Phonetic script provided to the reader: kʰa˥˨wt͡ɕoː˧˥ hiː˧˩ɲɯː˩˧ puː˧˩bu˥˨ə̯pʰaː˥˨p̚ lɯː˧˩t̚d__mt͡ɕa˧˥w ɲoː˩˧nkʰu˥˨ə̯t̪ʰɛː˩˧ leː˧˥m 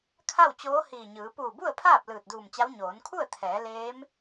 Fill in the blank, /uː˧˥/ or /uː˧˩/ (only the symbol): uː˧˩